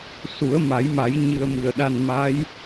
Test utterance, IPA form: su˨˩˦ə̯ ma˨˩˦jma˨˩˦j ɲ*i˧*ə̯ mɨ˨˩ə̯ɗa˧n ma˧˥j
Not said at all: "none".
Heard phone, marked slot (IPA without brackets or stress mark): ɨ˧